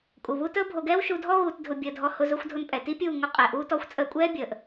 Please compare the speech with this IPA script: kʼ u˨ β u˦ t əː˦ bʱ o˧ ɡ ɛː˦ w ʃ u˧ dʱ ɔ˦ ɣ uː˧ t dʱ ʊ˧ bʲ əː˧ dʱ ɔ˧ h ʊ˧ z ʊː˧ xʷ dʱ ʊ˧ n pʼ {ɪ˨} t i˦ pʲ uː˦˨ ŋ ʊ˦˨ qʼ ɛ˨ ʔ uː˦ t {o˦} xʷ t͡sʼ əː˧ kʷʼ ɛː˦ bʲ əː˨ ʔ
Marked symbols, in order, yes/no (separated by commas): no, no